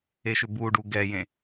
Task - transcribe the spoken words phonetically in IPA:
e ʃ ʏ b u ɖ u ɡ ɛ j ẽ

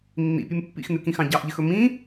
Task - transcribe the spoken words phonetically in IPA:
nː ḭ pʲ ʉ m pː ḭ x n ʉ k ĩ x ɑ̃ ɟ ɑ ʔ ʎ ɘ x ɵ m ĩ

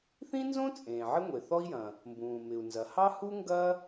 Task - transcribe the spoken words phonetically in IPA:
θ ĩ˥ n z õ˥ t͡sʼ ẽː˩ ʕ ɪ˥ ŋʷ e˩ θ ɔ˥ i̯ j ɐ̃˩ | m b ũː˩ m ɪ˩ u̯ n z ɐ˩ h ɑ˥ h u˥ ŋ ɡ ɐ˥

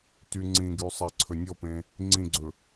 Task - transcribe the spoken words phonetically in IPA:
t y ŋ͡ǀ ĩ ɡ y sˤ æ ǀʰ ɵ nʲ ɔ p ẽ | ŋ͡ǀ ĩ ɡ͡ǀ ɵ

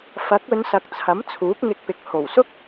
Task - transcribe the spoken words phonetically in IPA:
f ɐ˨˥ k̚ ɵ˨˧ n s ɐ˨ k̚ t͡sʰ ɐ˨˥ m t͡sʰ uː˨˥ p̚ ŋ ɪ˧ k̚ p ɪ˨ k̚ h o˨˩ w s ʊ˥ k̚

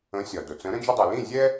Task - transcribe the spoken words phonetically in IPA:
ə̃˩˥ sʲ ɒ˩ d ʊ˩ t͡s ə̃˩˥ ɾ ə̃˧ d͡ʒ ə˧ dˤ ø˩ l ĩ˥˩ zʲ ɛ˥

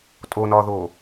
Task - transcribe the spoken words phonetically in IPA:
tʼ o n ɒː ð oː

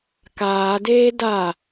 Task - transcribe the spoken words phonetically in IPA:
k aː d eː d a

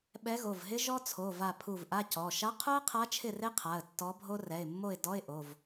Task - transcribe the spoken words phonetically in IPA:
ɓ ɛ˧˥ ɣ o˩˧˩ v ɦ ɪ˥ ʒ ɔ˥ t͡sʰ o˩˧˩ v a˧˩ pʰ u˧˩ v ʔ a˧˥˧ c ɔ˩˧˩ ʃ a˧˥ qʰ o˥ ə̯ qʰ a˧˥ t͡ʃʰ ɪ˥˨ r e˥ qʰ a˩˧˩ ə̯ tː ɔ˧˥ bʱ o˥ r ɛ˩˧˩ ɪ̯ mː o˥˨ ɪ̯ d ɔ˧˥˧ ɪ̯ ʔ o˩˧˩ v

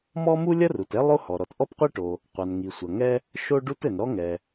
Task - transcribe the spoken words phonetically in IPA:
m ɔ˥ m u˥ lʲ ɐ˥ r u˩ t ɛ˥ lˠ o˥ h ɔ˩ ɾ ɔ˩ t ʔ ɔ˥ p qʷ e˥ ʈ o˩ | qʷ a˩ n ŋ i˩ sʷ ɐ˩ ŋ ɛ˥ | ʃ o˥ ɖ u˥ t ɘ˩ n ɾ ɔ˥ ŋ ɛ˩

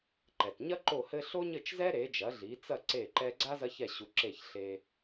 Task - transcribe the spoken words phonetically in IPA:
ǃ ɛ˩ t ɲ ɐ˥ ǃ o˥˩ h ɘ˥ ɬ o˥ ɲ ɘ˥˩ t͡ʃ z ɛ˥ ɾ e˩˥ d͡ʒ ɐ˩˥ ɮ i˩˥ t͡s ɐ˥˩ ǀ e˥˩ ǃ ɛ˥ ɡ͡ǀ a˥ z ɐ˥ ç ɛ˥˩ ɕ u˧ ǁ e˥˩ ç ɬ e˧

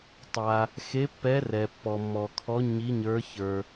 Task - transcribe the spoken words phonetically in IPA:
tˤ a˩ | x e˨˦ pː ɛ˨˦ r ɛ˩ pː ɔ˩ mː ɔ˩ kʰ ɔ˨˦ ɲ i˨˦ ɲ ə˞˨˦ ç ə˞˩

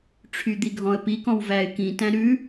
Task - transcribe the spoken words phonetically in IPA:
ʈ͡ʂʰ y d̪ i ɡʱ ɔ̃ ə̯ p i k ɔ̃ w v æ ɪ̯ k ĩ t æ̃ ɾ ʉ

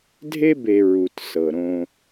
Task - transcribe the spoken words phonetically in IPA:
dʱ e˥ b e˨ ɹ u˩ t s ɤ˩ ɾ õ˨

